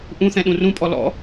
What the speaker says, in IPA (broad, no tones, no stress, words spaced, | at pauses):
ʔũθɛ̃ ɗũrũpʼɔ lɔ̰